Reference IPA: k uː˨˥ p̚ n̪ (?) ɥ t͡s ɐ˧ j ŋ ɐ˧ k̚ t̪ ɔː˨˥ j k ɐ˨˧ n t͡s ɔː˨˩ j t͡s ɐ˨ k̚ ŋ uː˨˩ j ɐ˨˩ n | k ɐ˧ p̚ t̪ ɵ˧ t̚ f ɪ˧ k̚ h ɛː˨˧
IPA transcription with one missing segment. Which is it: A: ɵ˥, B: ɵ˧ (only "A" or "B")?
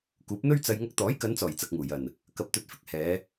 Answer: A